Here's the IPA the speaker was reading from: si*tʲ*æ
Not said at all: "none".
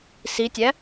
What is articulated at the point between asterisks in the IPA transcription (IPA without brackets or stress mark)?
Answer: tʲ